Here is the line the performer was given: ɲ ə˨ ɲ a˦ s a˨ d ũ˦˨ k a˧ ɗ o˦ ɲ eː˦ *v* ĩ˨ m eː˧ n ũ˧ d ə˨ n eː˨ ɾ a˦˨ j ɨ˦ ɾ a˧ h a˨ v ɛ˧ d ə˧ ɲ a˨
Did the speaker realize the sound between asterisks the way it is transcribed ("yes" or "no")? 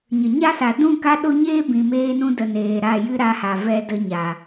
no